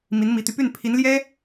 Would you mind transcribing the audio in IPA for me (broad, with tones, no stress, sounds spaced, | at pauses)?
m i˧˥ n m i˧˥ t̪ y˧ p y˥˩ n pʰ i˧˥ n l j ɛ˥